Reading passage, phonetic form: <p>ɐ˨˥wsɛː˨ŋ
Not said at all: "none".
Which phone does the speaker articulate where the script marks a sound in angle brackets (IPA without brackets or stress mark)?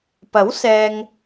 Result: p